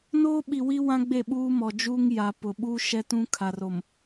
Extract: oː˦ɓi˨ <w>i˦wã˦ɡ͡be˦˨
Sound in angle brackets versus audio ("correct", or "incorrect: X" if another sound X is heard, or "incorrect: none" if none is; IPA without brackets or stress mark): correct